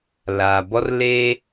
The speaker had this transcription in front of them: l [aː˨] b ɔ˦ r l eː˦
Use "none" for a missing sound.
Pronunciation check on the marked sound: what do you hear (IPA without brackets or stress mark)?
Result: aː˨